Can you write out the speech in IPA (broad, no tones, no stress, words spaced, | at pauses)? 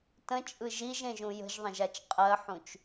tə̃t͡ʃʼɯ ʒiʒẽʒũ jə̤ʒðˤə̃ʒat͡ʃ qʼɜħũt͡ʃ